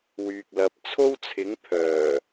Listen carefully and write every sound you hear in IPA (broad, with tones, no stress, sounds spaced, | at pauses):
w yː˨ k̚ l ɐ˨˥ p̚ t͡sʰ o˥ w t͡sʰ ɪ˨˥ ŋ pʰ œː˨˩